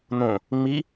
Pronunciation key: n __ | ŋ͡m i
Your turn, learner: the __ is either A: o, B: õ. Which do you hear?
B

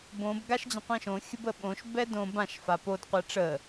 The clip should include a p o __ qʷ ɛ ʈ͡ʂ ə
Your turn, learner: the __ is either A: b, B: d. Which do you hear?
B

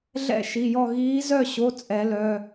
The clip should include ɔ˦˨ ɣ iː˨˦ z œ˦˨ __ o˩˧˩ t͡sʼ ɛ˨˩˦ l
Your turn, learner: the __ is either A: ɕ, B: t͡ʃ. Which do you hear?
A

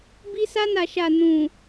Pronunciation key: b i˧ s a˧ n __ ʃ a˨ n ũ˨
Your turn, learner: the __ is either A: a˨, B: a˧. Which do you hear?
A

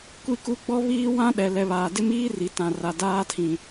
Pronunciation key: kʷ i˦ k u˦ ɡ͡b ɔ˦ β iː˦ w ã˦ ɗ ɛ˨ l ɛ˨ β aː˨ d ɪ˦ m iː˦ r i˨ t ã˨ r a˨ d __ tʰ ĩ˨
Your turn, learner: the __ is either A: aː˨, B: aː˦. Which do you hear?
B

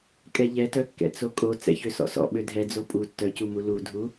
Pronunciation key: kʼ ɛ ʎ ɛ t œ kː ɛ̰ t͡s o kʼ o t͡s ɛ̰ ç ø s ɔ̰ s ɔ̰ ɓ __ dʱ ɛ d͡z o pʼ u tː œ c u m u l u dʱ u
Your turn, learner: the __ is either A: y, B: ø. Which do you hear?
B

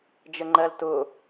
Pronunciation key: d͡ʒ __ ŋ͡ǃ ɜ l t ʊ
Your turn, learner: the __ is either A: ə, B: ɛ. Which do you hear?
A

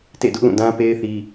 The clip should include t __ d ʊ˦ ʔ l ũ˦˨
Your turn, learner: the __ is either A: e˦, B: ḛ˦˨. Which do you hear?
B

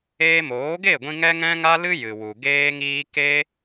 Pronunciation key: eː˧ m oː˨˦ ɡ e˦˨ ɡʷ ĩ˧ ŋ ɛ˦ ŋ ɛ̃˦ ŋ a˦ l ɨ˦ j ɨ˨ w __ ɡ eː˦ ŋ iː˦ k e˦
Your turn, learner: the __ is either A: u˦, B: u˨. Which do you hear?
B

